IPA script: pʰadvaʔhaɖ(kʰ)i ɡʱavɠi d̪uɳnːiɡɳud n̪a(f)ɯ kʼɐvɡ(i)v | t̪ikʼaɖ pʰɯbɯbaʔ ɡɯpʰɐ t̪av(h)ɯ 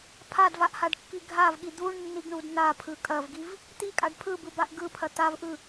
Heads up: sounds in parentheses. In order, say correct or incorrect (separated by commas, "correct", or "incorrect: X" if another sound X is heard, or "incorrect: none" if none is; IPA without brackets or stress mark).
incorrect: kː, incorrect: pʰ, correct, incorrect: ʔ